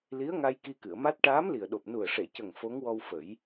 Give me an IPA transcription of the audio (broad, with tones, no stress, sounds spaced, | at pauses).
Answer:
l i˧˥ ə̯ ŋ a˧ j k i˧ k ɨ˨˩˨ ə̯ m a˦˥ t̚ ʈ aː˧˥ m l i˨˩ ə̯ ɗ o˨˩ p̚ n u˨˩ ə̯ ʂ e˨˩˨ c ə˨˩ ŋ f o˧˥ ŋ w ɔ˧ w f ə˨˩˦ j